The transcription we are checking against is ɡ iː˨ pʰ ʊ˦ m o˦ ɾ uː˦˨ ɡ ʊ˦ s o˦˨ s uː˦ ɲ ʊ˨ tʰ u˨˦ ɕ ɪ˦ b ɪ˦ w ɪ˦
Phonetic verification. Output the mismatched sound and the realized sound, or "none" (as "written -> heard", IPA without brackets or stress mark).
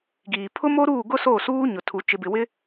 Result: ɕ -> t͡ʃ